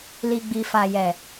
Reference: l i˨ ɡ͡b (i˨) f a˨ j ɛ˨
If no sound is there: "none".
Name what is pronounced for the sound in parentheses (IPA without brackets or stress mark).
i˨